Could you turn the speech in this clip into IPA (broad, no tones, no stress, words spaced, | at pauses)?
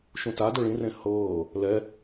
ʃũta doɭĩ rẽhɤː | lɛ